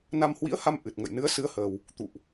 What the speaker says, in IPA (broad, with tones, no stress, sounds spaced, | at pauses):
n a˧ m h w ḭ˧˥ ə̯ h a˧ m ʔ ɨ˨˩ t̚ ŋ ə̰˧˨ j n ɨ˨˦ ə̯ s ɨ˨˦ ə̯ h əː˨˩ w | t̪ ṵ˧˨ ʔ